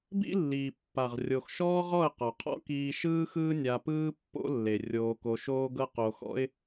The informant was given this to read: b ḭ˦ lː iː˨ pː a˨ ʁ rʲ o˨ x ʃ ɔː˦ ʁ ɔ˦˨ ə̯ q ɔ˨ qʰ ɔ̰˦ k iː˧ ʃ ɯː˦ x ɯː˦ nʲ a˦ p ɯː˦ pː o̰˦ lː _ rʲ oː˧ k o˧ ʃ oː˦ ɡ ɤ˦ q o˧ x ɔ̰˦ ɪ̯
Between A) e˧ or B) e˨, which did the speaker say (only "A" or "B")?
B